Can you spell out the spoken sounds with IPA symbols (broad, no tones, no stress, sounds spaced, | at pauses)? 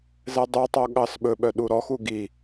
z ɛ dˤ y tˤ o ɠ ɑ s ɓ ɵ ɓ œ ɗ u ɾ ɔ x u ɡ i